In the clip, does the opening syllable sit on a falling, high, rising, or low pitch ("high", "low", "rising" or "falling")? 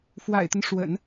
low